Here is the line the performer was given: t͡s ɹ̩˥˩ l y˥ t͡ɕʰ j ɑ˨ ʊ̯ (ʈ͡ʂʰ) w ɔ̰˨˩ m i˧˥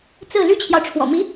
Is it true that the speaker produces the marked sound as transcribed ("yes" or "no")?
yes